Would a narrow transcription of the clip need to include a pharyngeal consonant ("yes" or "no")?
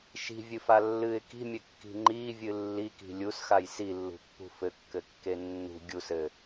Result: no